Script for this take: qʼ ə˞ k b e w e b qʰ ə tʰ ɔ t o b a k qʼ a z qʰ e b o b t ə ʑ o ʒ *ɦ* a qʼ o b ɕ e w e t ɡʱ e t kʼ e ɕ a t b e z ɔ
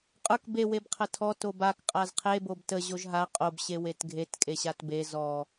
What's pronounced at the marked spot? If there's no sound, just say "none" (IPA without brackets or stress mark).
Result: ɦ